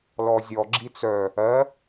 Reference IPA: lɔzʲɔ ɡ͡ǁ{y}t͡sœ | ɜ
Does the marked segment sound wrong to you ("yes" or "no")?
yes